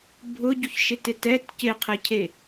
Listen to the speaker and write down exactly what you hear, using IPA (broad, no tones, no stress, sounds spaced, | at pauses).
bʱ ʊ ɟ u ç ʃ ɪ t ɪ t ɛ t c ɪ qʰ ɛ cʰ e